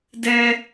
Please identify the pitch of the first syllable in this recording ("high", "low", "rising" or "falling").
high